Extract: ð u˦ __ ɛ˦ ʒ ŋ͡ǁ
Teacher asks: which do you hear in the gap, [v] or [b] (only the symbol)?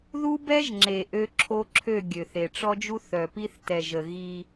b